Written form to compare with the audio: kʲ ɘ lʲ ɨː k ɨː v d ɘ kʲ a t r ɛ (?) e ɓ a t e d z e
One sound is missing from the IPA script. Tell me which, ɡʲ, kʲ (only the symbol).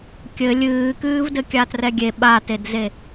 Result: ɡʲ